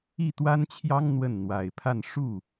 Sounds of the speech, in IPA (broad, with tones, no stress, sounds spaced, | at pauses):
i˥˩ t̪ w a˥ n t͡ɕʰ j ɑ˥ ŋ n̪ w ə˥˩ n n̪ w a˨˩ ɪ̯ pʰ a˥˧ n ʂ u˥˩